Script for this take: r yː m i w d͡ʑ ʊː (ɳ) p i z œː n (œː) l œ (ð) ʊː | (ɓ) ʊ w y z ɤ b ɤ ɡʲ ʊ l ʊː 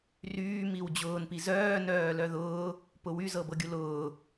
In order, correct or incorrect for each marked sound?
incorrect: n, correct, correct, incorrect: p

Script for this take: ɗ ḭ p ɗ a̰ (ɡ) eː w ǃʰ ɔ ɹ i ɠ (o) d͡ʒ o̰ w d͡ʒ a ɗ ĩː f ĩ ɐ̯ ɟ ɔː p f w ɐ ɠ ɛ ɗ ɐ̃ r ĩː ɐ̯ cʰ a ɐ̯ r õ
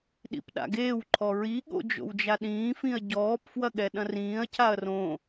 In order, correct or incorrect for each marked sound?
correct, incorrect: o̰

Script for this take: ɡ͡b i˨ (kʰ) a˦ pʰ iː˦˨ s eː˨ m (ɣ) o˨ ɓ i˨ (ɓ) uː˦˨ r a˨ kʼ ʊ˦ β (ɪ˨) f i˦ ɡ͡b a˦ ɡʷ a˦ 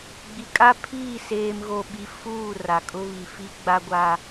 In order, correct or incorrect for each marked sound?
incorrect: kʼ, correct, incorrect: f, incorrect: i˨

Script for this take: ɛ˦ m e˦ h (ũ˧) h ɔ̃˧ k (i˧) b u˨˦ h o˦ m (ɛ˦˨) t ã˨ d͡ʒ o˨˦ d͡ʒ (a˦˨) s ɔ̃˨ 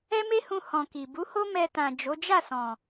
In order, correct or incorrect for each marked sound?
correct, incorrect: i˨, incorrect: ɛ˧, correct

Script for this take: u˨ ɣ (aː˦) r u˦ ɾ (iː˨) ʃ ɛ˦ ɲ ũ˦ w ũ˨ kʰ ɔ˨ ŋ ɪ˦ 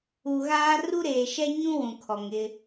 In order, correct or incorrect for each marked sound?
correct, incorrect: eː˨

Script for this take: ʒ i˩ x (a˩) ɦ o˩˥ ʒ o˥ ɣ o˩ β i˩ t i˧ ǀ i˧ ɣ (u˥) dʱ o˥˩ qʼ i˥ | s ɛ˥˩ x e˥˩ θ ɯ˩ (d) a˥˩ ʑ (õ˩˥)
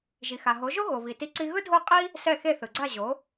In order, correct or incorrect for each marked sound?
correct, incorrect: ɯ˥, incorrect: ɡ͡ǀ, incorrect: o˩˥

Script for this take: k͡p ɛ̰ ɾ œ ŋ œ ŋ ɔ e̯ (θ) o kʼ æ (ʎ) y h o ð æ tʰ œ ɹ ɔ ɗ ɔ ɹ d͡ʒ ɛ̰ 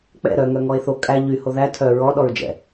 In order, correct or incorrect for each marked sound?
correct, correct

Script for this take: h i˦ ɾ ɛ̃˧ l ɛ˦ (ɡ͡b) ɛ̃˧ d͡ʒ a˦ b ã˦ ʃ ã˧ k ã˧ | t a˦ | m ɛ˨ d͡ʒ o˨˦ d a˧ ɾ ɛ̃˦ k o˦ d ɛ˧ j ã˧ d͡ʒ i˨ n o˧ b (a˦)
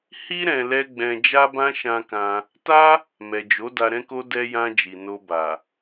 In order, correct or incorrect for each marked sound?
correct, incorrect: a˨

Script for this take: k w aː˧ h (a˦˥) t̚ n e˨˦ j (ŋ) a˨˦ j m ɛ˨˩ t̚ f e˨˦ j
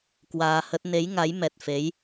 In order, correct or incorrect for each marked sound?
incorrect: ə˦˥, correct

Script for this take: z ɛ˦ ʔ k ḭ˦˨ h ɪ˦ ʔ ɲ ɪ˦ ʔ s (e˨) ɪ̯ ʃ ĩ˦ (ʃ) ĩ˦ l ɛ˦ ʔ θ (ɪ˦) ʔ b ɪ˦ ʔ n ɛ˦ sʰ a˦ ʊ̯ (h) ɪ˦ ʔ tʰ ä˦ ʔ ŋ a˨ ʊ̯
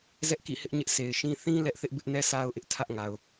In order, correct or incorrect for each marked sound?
correct, incorrect: θ, correct, incorrect: ʔ

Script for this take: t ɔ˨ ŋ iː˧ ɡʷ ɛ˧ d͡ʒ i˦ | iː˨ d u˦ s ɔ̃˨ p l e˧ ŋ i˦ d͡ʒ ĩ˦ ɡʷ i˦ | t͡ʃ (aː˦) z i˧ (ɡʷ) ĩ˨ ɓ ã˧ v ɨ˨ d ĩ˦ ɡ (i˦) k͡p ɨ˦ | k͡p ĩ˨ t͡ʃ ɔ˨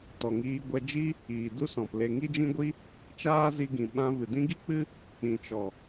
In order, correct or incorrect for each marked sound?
correct, incorrect: ɡ, correct

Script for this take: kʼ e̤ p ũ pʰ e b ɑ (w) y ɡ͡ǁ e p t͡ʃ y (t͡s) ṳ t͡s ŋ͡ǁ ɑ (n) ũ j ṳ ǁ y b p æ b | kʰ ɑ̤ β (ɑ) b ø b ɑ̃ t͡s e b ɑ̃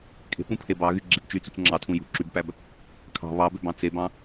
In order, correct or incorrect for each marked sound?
incorrect: ɣ, correct, incorrect: tʰ, correct

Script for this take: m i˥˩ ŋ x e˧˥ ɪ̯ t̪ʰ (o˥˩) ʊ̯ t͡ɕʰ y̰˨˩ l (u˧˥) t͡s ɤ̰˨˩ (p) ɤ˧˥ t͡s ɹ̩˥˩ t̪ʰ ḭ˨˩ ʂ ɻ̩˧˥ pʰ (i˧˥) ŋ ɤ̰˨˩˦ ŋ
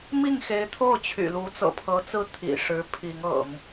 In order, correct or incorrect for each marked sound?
correct, correct, incorrect: pʰ, correct

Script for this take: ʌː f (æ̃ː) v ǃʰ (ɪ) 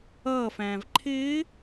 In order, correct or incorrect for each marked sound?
correct, incorrect: ɪː

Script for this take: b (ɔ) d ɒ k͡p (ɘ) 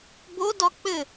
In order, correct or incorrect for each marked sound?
incorrect: o, correct

